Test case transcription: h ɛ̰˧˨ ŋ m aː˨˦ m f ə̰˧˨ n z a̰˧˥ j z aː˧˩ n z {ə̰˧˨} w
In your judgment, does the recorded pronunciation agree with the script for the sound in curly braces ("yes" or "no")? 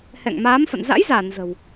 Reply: no